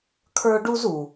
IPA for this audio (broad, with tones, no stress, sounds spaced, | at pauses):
kʰ ə˞˥ ɖ u˥ z u˩